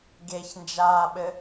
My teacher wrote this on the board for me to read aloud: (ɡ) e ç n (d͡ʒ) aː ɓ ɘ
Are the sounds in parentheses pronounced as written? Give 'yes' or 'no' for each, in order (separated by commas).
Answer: yes, yes